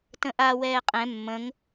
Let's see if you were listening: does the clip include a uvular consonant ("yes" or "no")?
yes